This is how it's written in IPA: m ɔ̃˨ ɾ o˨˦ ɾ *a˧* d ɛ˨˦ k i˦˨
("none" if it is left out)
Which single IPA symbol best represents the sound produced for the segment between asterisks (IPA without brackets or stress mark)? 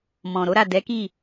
a˦˨